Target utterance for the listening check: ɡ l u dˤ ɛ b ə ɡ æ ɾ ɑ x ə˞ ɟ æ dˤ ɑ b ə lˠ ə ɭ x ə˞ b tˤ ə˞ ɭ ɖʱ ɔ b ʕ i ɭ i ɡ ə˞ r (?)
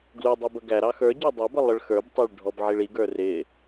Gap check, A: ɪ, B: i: A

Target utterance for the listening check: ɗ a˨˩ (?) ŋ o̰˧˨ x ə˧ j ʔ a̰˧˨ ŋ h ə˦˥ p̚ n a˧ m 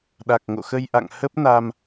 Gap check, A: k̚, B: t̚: A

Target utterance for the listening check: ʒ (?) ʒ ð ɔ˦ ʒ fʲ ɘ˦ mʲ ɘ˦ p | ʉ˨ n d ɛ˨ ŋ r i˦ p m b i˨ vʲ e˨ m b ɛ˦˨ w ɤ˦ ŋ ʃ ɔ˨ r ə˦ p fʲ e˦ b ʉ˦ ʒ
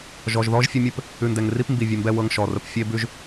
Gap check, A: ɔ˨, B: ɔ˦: A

